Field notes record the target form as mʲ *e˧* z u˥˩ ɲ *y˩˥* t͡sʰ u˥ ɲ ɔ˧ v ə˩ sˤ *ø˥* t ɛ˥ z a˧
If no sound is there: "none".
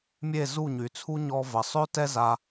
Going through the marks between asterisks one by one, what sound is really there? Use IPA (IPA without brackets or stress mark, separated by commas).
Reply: e˥˩, y˩, ø˥